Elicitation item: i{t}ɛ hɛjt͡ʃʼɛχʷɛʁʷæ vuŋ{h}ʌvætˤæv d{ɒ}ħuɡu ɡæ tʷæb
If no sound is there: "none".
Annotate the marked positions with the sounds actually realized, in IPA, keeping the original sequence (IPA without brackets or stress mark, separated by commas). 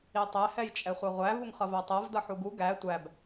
tˤ, χ, ʌ